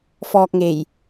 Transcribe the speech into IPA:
fɔː˨k̚ŋe˨˩j

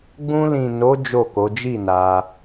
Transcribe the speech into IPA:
ɡ͡bũ˧lĩ˨no˨˦ d͡ʒo˦˨ko˨˦ d͡ʒi˦˨na˧

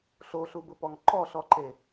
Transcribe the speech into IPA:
ɬoɬubʊpɔŋ ǃɔɬɔǃe

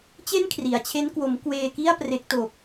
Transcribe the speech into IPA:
t͡ɕe˥˩nkʰri˩˦a̯t͡ɕʰe˦˥n kwo˩˦m kweː˧ki˥˩a̯ pre˦˥k̚to˨˩k̚

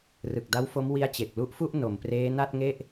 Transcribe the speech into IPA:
rɯ˨˩k̚da˦˥wfo˦˥m wi˦˥a̯t͡ɕe˨˩k̚lu˦˥ʔfu˥˩ʔ no˩˦m preː˦˥na˥˩t̚ŋe˥˩ʔ

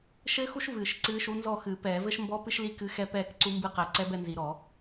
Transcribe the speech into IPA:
ʃɘː˥xu˥ʃ vɨː˧˩˧ʃ ǀɨː˧˥ʃu˧˥ nzɔ˥˨xɨ˧˩˧pɛː˧˩˧vɘ˥ʃ mbɔ˧˥ pɨ˥ʃli˥˨ kɨ˧˥xɛ˧˥ pɛː˥˨kǀu˧˥mbɨ˥˨ qɛ˧˩˧ǀɛ˧˥ bɛ˥˨nzi˧˩˧ɾɔ˧˩˧

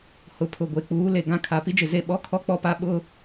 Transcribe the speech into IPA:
hʊ˨ pʰʊ˨ɡʷe˨k͡puː˨˦le˨ ɡã˦˨kʰa˨ pi˦d͡ʒɪ˨ze˦˨ ɓɔ˦kʰɔ˦k͡pɔ˦pa˦ ɓʊ˦

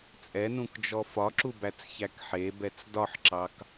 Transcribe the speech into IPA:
t͡sʼɛnũkd͡ʒɔ fɒǁubæt͡sçæk ħebɛt͡s dɒħǁɑk

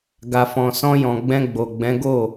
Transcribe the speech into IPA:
ɡa˨fɔ̃˨sɔ̃˧jɔ̃˨ ɡ͡bɛ̃˧ɡ͡bo˨ɡ͡bɛ̃˨˦ ɡo˦˨

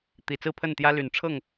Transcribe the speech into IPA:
t̪i˨˩t͡sɹ̩˥˨pʰə˥˨nt̪jä˦ ly˨˩nʈ͡ʂʰɤ˥˨ŋ

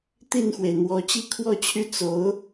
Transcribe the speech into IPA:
t̪i˥˩nxwe˩ɪ̯n̪wɔ˧˥ t͡ɕi˥˧kʰwɔ˥˧t͡ɕʰy˥˩ t͡so˧˥ʊ̯

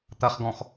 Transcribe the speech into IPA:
t̪ɐχɡɔ̃x

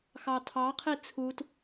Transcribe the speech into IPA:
xɑtʰɑqʰi t͡sʰut

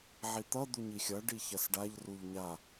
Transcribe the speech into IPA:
ʕit̪ʌ d̪uɲixʲʌ ɖiçɐsɖaʎ ruʎɲa

